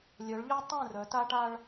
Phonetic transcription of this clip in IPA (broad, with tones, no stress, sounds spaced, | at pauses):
lʲ œ˨˦ ɭ ʎ œ˦ tˤ œ̃˦˨ r œ˨˦ t a˦ ʈ a˦ ɭ